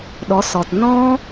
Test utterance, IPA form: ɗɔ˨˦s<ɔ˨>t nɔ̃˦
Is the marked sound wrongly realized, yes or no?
no